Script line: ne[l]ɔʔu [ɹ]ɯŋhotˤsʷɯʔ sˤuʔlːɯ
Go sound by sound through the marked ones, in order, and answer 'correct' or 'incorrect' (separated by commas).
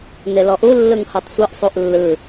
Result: correct, incorrect